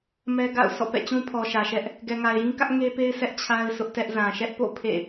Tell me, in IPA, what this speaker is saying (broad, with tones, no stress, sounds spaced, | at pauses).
m ɛ˦ ɡ a̰˦˨ ʊ̯ s ɔ̰˦˨ p ɛ̰˦˨ t͡ɕ ũ˦ pʰ ɔ˨ ʃ ä˨ ʃ ɛ˦ ʔ | ɡ ɛ˨ ŋ a˨ ɪ̯ j ĩ˦ k ä˦ ʔ ŋ e˦ p e˦ ɪ̯ s ɛ˦ ʔ t͡ɕʰ a˦ ɪ̯ sʰ ʊ˦ ʔ t ɛ˦ ʔ z ã˨ ʃ ɛ˦ ʔ p o̰˦˨ pʰ ḛ˦˨